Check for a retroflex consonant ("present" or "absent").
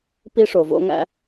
present